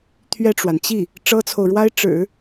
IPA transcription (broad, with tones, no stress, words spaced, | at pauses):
t̪ʰɥɛ˥˩ʈ͡ʂwa˩n t͡ɕi˥˩ | ʈ͡ʂɤ˥t͡sʰo˨ʊ̯ɻwa˥ɪ̯ ʈ͡ʂɻ̩˨˩˦